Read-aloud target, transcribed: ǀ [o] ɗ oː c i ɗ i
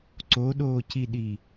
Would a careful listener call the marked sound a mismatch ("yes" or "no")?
no